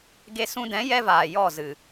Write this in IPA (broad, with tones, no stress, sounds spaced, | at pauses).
ɡ e˧ s ũ˧ d ɛ̃˨˦ j ɛ˦ v aː˨ j ɔ˦˨ z ɨ˨